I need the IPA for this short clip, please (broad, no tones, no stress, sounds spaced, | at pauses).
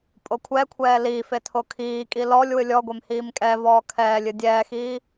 pʼ o kʷʰ ɛ kʷʰ ɛː l iː f e tʰ o kʰ iː kʼ i l ɔ lʲ w ɨ lʲ ɔ ɡʷ e m h iː m kʼ ɛ v ɔː kʰ ɛː lʲ ɨ dʲ ɛː x iː